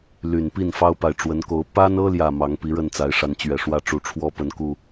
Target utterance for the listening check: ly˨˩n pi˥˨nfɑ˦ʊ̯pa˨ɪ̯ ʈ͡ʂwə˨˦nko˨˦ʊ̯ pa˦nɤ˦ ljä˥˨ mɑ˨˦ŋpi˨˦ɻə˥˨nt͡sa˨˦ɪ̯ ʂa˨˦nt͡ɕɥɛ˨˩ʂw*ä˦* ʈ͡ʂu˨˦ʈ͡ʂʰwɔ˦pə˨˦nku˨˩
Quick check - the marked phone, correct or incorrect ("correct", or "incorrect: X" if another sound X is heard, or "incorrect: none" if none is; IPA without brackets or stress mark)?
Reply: correct